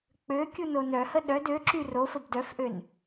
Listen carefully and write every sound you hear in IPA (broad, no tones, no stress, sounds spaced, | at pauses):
k͡p ø kʲ u n o n œ h ə ɗ œ d ø ǁ y r o f ə b d œ f ʔ ø n